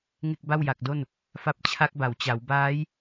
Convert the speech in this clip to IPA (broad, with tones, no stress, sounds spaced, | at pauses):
ŋ e˥˩ k̚ b a˥˩ w j a˨˩ k̚ d o˥˩ n | f a˦˥ p̚ t͡ɕʰ a˦˥ k̚ b a˩˦ w t͡ɕ a˩˦ w b aː˦˥ j